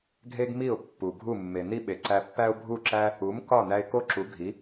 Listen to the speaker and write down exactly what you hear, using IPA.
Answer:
ɡʱ e˥ ɡ m i˥˩ ʊ̯ pː u˩ ɡʱ u˥˩ mː e˩ n i˥ ɓ e˩ ǀ æ˧ pː æ˥ ʊ̯ bʱ u˥˩ ǁ æ˥ | u˩˥ m k ɒ˥˩ n æ˧ ɪ̯ k o˥ ǁ u˩˥ ɡʱ i˩˥

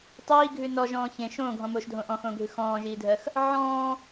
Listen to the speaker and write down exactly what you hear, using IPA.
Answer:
tˤ iː ɡʱ ʉ n ɔ ʒ ɔ̃ː ç ẽ ʃ õː ɡʱ ɔ̃ m oː ʃ dʱ õ ʔ ɔ̃ x õː ɡʱ ʉ x ɔ̃ː ʒ iː dʱ ɜ x | ʕ ɔ̃ː

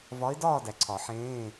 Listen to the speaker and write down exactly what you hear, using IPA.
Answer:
v ɒ˧˥ ɪ̯ d ɒː˥˧ d æ˨ ǀʰ ɒ˨˩˦ ħ ẽː˧˥˧

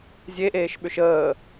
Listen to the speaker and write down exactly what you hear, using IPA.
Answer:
zʲ e ʔ eː ʃ ɓ ʏ ʃ əː

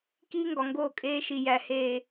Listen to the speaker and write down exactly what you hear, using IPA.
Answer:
k iː˦ ŋ ɡ ɒ˨ ŋ ɡ oː˦˨ kʼ eː˦ ʃ i˨ j æ˨ h eː˨

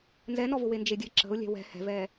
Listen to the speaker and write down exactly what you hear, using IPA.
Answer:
n z ɛ n ɔ v ʊ w e n d͡ʒ e dʲ ɘ ǁ ə̤ ʊ̯ lʲ ɛ̤ w ɛ̤ h ɛ̤ v ɛ

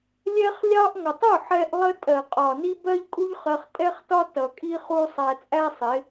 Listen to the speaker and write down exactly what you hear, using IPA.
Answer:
lʲ ɛ˦ χ lʲ ɑ˦ ʔ ŋ ʌ˨ tˤ u˦˨ ħ ɛ˧ ʔ lˠ ə˦ tʼ ɜ˨ qʼ ɒ˨ n i˦ b ɜ˦ ʎ kʼ u˦ ʎ χ ɜ˧ χ tʼ ɛ˦ χ t ɒ˦ t ʌ˨ kʼ i˦ χ u˧ sˤ æ˨ t͡sʼ æ˦ sˤ ɪ˨˦

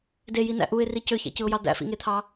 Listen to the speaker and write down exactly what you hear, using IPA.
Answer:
d e j i n æ̰ ʔ u ɪ̯ r i c ø ç æ̰ c ɯ ʊ̯ j ɑ d̪ æ̰ f ḭ ŋ e t̪ʰ ɑ

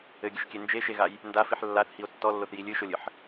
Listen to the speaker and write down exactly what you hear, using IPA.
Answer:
ɘ ɡʲ ɨ ʃ kʲ e n d͡ʒ e ʃ e ɣ a j | n d a f i ħ lː a θ h i o̯ tː ɔ lː o θ j i lʲ ɨ ʃ o lʲ ɨ ħ

